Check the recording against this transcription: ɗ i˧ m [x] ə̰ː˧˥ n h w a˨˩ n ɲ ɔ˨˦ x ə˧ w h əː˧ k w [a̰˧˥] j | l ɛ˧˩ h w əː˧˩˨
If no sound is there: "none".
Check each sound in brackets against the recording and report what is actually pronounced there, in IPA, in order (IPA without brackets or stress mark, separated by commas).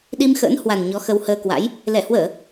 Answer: x, a̰˧˥